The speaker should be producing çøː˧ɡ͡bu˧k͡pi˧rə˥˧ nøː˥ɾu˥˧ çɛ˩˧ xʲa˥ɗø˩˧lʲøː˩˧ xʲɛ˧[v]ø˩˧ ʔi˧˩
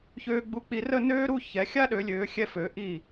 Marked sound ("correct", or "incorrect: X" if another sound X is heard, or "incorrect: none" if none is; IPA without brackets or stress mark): incorrect: f